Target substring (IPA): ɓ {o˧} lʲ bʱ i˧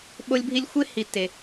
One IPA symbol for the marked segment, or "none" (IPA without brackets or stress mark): o˧